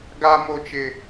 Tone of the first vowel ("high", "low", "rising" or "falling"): high